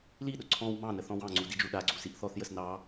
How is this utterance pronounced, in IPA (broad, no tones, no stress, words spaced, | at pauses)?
liɗʊ ǀʰɔ̃w mɑ̃nə θɔ̃wɑ̃ŋ͡ǀu did͡ʒuɗaɡ͡ǀu siʔθɔθjəs nɑ